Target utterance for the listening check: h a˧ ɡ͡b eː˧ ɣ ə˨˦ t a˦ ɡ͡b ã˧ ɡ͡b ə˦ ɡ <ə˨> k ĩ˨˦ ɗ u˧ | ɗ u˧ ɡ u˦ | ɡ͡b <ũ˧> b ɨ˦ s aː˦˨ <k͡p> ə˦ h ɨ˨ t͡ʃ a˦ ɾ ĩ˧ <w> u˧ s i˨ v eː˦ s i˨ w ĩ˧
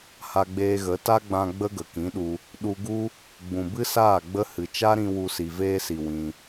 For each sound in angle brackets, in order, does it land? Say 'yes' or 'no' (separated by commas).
yes, no, no, yes